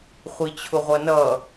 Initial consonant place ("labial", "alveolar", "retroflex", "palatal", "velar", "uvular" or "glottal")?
uvular